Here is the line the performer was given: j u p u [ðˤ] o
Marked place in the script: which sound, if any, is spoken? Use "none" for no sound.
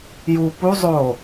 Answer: zˤ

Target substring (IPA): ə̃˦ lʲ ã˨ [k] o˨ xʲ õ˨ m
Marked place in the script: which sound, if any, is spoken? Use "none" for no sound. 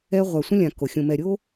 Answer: k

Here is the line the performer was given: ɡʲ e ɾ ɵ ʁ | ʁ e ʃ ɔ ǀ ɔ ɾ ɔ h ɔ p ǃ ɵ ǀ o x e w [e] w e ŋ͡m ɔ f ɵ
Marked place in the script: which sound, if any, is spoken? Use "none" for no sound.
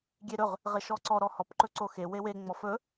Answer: e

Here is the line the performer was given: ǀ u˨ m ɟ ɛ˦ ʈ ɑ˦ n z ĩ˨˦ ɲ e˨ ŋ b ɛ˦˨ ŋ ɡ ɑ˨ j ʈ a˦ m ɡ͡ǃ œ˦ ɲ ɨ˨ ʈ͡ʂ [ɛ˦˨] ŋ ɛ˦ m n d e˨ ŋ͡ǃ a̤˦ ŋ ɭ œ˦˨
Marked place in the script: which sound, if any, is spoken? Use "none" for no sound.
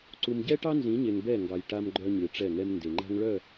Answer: ɛ˦˨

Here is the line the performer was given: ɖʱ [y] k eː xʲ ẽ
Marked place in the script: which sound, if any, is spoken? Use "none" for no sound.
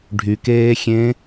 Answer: y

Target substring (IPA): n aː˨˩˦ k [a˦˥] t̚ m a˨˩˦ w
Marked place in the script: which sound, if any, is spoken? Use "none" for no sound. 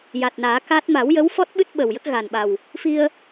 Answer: a˦˥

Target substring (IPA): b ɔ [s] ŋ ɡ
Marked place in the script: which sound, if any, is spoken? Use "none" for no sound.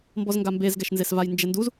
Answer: z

